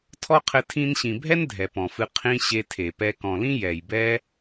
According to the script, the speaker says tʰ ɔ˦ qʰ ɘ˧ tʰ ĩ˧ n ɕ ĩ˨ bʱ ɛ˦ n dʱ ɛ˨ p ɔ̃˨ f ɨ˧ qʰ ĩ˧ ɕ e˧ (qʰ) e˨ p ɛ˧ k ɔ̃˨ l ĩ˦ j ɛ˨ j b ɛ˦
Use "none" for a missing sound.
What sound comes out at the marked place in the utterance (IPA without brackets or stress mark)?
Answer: tʰ